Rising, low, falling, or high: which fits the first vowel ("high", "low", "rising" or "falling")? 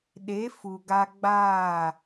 rising